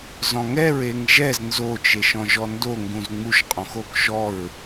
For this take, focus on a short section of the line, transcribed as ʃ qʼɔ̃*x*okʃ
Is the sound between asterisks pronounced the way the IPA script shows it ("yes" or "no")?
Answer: yes